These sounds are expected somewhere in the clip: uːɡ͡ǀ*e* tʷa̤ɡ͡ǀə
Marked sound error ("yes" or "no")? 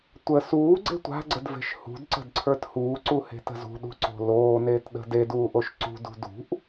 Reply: yes